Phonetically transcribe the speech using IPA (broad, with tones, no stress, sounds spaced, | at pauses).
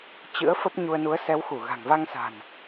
t͡ɕ ɨ̰˧˥ ə̯ f ə˦˥ p̚ ɲ u˧ ə̯ n u˨˦ ə̯ s ɛ˨˦ w x u˧˩ ɣ a̤˨˩ ŋ v a˧ ŋ s a̤˨˩ n